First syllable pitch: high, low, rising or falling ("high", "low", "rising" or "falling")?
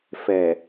low